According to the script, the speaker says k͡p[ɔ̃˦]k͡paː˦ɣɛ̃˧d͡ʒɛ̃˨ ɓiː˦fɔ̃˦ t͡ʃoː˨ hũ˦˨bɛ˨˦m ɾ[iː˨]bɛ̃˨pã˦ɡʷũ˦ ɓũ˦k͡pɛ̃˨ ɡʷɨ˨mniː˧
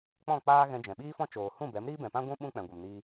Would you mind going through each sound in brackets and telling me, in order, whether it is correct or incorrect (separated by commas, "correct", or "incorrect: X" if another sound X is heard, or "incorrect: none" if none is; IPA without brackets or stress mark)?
incorrect: ɔ̃˦˨, incorrect: iː˦